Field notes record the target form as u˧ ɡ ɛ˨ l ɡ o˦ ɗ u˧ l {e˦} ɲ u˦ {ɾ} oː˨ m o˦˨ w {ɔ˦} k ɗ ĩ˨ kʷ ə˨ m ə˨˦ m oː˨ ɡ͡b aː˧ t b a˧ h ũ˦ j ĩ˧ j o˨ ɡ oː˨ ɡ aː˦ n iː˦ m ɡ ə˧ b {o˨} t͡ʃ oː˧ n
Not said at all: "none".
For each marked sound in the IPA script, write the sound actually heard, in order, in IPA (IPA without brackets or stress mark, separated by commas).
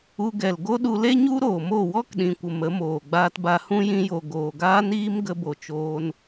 e˦, ɾ, ɔ˦, o˨